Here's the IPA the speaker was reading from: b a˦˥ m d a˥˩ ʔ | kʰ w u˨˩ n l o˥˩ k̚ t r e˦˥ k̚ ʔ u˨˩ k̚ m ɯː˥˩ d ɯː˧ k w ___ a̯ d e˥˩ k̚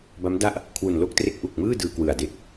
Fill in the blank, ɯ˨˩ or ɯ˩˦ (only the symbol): ɯ˨˩